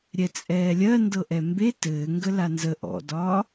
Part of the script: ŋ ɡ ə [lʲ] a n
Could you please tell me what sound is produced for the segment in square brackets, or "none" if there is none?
l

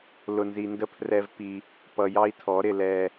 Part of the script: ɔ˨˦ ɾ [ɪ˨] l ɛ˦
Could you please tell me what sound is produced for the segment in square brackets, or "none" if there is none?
ɪ˨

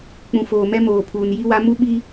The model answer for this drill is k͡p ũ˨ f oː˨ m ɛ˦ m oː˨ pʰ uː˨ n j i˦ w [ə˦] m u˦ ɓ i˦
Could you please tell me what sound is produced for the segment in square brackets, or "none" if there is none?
a˦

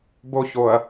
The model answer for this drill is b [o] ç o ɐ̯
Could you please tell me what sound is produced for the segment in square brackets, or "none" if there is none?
o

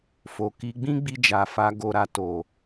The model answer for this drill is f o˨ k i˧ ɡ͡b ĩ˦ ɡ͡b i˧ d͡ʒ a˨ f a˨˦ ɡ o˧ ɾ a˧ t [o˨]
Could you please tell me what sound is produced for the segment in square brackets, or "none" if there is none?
o˨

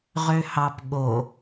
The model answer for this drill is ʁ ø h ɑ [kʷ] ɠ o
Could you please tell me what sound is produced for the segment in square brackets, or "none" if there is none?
p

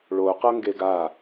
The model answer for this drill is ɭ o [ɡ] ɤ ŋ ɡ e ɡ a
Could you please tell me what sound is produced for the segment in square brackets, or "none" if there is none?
q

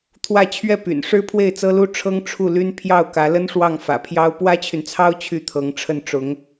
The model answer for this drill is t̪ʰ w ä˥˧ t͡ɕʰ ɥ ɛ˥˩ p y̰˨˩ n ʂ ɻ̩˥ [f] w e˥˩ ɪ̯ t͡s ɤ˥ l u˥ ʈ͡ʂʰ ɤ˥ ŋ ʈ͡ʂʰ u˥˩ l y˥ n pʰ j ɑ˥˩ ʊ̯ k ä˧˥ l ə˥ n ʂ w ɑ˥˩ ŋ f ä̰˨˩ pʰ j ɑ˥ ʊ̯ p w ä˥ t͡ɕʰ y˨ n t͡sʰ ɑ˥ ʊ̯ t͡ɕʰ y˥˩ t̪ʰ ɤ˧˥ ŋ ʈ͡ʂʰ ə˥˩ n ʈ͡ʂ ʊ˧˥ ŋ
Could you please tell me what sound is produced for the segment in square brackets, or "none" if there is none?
pʰ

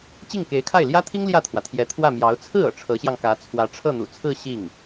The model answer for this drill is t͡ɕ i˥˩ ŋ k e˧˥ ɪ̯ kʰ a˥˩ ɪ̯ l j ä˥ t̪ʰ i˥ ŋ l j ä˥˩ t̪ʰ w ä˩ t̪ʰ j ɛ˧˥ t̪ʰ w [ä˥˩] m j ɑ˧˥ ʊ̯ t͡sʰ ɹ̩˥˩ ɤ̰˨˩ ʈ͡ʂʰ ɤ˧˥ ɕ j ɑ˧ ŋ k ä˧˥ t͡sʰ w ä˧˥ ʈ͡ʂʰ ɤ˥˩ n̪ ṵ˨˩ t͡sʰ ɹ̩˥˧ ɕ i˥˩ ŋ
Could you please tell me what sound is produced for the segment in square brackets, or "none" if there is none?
ä˥˩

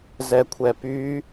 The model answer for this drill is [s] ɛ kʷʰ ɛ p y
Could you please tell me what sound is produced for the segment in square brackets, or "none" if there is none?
z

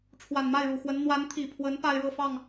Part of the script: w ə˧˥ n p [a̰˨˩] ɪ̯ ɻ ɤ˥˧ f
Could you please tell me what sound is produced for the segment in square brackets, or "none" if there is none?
a˥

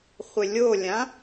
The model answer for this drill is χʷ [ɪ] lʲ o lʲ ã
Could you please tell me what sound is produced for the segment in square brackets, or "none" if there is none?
ɪ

